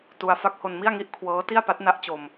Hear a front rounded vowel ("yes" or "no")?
no